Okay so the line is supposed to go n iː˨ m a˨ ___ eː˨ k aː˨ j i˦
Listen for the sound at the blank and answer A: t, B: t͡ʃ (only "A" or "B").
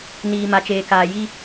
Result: B